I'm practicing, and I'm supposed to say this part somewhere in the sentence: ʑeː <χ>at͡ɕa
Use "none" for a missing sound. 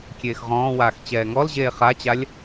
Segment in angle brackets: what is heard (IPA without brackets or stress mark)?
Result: χ